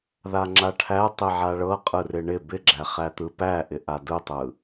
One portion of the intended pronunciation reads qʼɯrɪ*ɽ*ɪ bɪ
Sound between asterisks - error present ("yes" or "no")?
yes